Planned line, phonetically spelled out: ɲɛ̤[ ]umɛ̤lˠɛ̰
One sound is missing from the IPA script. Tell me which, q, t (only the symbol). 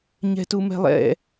t